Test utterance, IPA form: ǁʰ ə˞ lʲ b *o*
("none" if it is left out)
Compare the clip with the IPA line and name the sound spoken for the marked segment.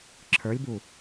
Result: u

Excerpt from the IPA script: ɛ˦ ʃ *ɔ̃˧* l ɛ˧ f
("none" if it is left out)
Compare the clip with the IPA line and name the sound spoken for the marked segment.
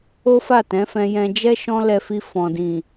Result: ɔ̃˦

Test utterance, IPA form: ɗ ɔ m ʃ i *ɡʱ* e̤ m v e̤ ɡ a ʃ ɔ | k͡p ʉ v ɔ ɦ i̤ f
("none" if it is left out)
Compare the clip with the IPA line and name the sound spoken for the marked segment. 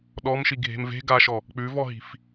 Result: ɡʱ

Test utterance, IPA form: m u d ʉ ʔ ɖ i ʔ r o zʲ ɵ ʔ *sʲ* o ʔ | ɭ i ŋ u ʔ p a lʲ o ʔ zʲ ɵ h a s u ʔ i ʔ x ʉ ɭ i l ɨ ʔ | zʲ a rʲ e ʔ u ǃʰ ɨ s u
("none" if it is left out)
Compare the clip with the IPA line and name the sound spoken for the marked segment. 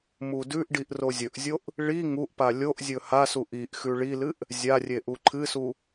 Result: zʲ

